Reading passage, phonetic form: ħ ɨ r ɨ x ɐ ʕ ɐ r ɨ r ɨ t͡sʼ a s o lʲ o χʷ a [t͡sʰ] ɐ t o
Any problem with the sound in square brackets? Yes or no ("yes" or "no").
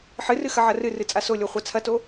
no